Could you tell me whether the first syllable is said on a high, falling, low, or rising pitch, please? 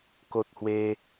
high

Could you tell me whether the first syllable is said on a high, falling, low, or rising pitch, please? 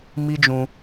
high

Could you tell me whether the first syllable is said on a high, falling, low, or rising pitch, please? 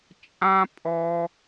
high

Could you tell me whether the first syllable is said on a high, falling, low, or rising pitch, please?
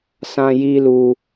high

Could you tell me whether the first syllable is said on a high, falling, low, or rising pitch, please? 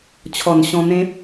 low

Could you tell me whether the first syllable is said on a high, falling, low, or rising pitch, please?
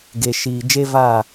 low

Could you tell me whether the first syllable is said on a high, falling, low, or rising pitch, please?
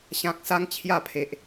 high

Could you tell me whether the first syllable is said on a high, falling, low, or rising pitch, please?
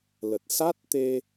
low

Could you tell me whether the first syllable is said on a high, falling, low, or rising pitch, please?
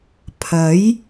rising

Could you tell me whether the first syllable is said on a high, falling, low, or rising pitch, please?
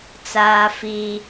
high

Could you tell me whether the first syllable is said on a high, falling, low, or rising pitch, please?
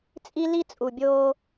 high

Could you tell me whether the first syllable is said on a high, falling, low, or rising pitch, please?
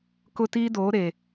high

